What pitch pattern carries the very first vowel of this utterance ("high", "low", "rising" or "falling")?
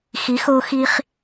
rising